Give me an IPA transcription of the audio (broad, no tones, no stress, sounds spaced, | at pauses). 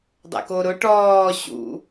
dˤ ɛ̰ k o ɾ ʊ ʈ ɔː ɕ ṵ